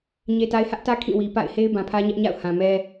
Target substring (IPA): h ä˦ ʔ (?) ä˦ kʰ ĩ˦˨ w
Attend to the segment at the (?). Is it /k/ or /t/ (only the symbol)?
t